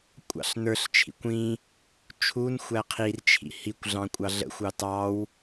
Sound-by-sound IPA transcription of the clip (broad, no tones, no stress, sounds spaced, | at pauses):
kʷʼ ɑ̰ ɬ n ə˞ ɬ t͡ʃʰ ḭ kʷ ĩ | t͡ʃʰ u n xʷ æ qʰ i r t͡ʃʰ ḭ h i kʷ ɮ ɑ̃ kʷʼ ɑ ɮ ə̰ xʷ ɑ t ɑ w